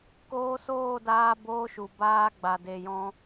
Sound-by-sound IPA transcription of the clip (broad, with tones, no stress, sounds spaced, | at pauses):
k oː˧ s oː˦˨ d aː˧ b oː˧ ʃ u˨ b aː˧ ɡ͡b a˨ d e˨ j ɔ̃˧